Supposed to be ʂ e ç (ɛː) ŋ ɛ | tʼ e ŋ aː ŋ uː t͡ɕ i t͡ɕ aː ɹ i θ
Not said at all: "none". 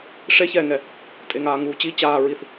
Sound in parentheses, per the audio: ɛː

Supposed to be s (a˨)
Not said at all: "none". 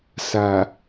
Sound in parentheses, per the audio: a˨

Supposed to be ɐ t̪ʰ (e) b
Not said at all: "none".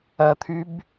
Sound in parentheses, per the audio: y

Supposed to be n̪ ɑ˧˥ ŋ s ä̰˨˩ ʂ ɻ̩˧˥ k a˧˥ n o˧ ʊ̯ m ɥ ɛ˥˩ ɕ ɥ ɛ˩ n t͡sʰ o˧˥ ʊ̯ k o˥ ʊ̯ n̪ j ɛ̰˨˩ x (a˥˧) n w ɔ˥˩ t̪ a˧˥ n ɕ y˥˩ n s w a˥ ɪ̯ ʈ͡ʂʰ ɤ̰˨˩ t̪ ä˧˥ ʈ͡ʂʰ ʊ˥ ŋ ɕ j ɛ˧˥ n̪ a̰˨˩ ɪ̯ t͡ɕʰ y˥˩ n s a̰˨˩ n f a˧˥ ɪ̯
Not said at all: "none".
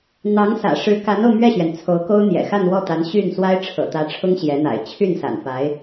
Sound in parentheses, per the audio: a˥˧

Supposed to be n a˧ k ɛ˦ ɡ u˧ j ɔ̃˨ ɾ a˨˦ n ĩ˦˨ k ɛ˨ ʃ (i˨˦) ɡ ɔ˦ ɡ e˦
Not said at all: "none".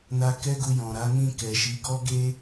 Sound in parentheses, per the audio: i˨˦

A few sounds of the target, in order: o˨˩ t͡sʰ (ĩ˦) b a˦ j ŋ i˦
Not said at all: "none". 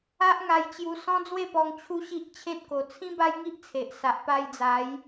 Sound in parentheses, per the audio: ĩ˦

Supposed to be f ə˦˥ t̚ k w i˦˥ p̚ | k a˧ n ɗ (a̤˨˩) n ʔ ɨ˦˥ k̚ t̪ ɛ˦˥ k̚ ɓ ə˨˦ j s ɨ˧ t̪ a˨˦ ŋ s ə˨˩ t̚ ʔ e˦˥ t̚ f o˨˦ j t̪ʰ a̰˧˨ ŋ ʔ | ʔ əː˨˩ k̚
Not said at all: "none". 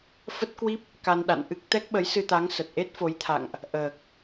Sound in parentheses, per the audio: a̰˧˨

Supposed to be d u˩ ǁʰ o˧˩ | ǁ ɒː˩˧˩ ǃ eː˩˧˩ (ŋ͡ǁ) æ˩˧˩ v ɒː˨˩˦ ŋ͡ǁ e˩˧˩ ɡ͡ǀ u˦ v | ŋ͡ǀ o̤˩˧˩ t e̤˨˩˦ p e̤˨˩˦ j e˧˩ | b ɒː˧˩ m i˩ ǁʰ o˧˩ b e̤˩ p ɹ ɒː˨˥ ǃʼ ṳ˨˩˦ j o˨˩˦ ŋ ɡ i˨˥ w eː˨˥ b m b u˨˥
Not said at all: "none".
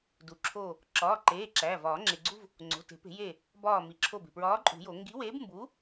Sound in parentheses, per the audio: ǁ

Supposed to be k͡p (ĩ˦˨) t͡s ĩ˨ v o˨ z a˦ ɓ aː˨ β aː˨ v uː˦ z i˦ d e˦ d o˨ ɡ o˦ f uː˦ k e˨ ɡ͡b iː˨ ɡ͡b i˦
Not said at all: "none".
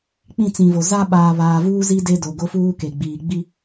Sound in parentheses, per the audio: ĩ˦˨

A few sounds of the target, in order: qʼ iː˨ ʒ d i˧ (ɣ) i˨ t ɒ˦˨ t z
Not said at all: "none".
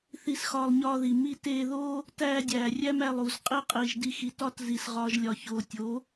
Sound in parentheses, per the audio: x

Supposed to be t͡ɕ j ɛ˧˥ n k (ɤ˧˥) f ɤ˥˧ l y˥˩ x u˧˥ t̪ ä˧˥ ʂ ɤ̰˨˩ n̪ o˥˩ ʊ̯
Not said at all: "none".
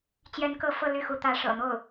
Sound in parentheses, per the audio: ɤ˧˥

